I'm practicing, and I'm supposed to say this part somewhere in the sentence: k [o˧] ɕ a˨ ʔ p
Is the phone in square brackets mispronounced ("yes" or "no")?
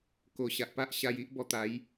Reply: yes